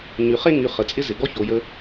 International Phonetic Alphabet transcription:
ɲy˨χe˦ ŋy˨ χə˨t͡sʼɪ˦ zɪ˨ ɡɔ˦ço˨ jə˦

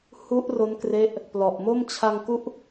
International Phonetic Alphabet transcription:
hu˦˥ʔro˦˥nkre˦˥ʔ | plɔ˨˩ʔmo˥˩m t͡ɕʰa˧ŋku˦˥ʔ

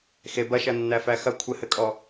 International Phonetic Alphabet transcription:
xe bɐʃɐnːæ fæxɐ kʷʰɘhɘkʼɔ

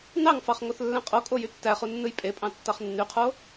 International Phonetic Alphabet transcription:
nɑŋfɑχ ŋoθlːæ̃qʼokʼo jytːæχu nːɯjpʼepʼɑ̃ tːɑχnːyqʰo

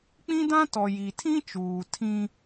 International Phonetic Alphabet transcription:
k͡pĩ˦dã˦tɔ˨ ji˨tʰĩ˦t͡ʃuː˨ tʰĩ˦

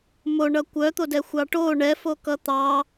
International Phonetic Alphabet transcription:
moɳʌ kʷœt̪odɛ xʷɑʈo ɳɛfo kʌt̪ɑ

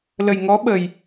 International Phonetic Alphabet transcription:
lə˨˩jŋɔ˧˥ɓə˨˩j

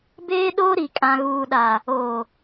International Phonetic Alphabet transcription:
beː˦ɗoː˦ɾi˨ kʼã˨ɣuː˨ɗa˨ | oː˨

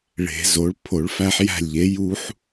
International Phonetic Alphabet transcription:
ɭe̤˨˩˦zo˩˥ɭ pʰo˨˩˦ɭfæ˦ħjæ̤˥˩lʲʎe˩˥ ju˦ħ

